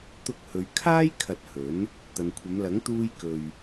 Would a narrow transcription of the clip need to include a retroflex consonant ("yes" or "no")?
no